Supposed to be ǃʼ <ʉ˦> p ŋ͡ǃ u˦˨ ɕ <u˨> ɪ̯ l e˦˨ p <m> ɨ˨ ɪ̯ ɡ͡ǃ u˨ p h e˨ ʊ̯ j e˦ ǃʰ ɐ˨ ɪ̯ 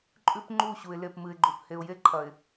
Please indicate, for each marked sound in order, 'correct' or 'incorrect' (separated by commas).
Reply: correct, correct, correct